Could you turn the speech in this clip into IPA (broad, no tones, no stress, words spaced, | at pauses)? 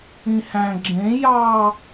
ĩhæ̃ ɡ͡ǁẽ jɑ